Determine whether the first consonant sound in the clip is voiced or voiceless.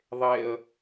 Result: voiced